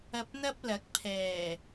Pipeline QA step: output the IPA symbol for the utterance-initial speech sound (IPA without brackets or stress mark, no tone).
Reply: ɐ